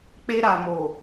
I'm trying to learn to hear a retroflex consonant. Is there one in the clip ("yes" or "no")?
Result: no